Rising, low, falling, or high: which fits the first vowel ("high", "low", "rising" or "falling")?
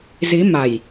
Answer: rising